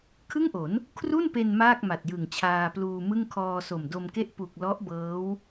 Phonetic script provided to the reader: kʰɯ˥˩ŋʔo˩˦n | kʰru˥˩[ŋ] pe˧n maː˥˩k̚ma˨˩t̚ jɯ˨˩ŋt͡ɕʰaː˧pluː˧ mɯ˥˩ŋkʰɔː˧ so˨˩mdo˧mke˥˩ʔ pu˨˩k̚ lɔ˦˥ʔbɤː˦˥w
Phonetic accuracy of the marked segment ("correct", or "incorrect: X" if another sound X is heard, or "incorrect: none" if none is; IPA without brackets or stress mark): incorrect: n